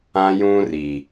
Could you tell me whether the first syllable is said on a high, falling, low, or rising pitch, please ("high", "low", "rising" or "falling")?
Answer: high